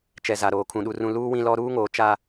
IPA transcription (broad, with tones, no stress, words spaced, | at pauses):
t͡ʃɛ˨za˨ɾoː˨ kʰũ˨ɗu˨rũ˨ luː˦wĩ˦lɔ˦ ɾuː˦ŋoː˨ t͡ʃa˦